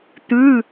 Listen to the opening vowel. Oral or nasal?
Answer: oral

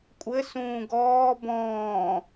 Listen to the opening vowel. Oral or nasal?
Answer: oral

